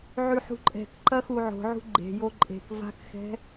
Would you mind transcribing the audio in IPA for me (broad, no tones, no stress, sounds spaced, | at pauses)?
ʕ y ħ ṳ ǃʼ ɛ̤ k ǃ ɐ x u ʕ o̤ ʕ ṳ ɡ͡ǃ e̤ j o ǃʼ e̤ k v a̤ k x ɛ̤